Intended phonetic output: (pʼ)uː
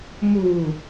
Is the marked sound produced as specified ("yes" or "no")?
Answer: no